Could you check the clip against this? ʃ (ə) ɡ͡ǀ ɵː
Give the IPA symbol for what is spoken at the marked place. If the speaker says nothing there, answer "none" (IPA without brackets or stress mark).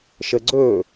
ə